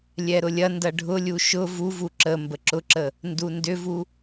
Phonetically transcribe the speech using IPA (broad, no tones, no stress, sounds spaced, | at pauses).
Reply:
lʲ ɛ ɾ ʊ lʲ ɐ n d ɐ ɖʱ ʊ lʲ u ʃ ʊ v u v u ǁ ə m b ə ǁ ʊ ǁ ə | n d u n d ʏ v u